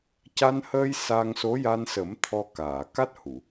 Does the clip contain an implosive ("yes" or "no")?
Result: no